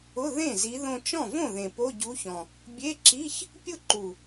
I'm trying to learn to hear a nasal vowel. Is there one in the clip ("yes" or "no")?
yes